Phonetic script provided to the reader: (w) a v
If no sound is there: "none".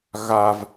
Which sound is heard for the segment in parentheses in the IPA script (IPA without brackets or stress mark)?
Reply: ɣ